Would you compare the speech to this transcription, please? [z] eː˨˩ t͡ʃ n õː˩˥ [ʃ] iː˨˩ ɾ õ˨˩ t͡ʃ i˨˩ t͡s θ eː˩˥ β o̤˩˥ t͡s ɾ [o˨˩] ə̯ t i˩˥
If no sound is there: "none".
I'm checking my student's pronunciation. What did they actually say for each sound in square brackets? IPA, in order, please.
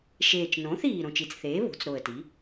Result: ʃ, θ, o˨˩

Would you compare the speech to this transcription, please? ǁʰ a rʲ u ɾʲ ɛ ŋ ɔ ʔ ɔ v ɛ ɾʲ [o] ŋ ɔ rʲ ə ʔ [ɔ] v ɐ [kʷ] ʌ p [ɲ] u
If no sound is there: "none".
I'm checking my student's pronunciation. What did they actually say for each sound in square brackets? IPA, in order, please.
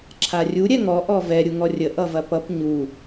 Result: u, ʌ, p, ɲ

